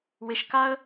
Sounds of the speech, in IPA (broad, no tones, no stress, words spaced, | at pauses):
wɪʃkaə̯